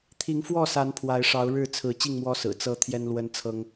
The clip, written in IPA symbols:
t̪ʰi˨˦ŋfwɔ˥˨sa˨˦n pʰwa˨˦ɪ̯ʂɑ˨˦ʊ̯ ɻɻ̩˥˨t͡sʰɹ̩˨˦ t͡ɕi˥˨ŋmwɔ˦sɹ̩˨˩ t͡sɤ˦ t̪ʰjɛ˦nlwə˦n t͡sʰɤ˦ŋ

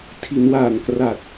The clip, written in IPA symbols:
tʰi˩˦nwaː˨˩nkra˨˩t̚

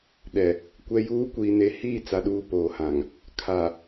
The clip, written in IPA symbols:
ɗɛ˨ | kʷɛ˨juː˨˦ kʷiː˨ne˨ hiː˦˨t͡sa˨ ɗuː˨ poː˨hã˨ŋ | kʰa˨

